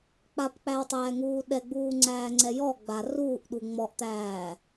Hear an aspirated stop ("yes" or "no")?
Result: no